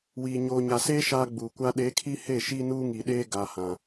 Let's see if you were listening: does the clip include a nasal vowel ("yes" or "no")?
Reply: yes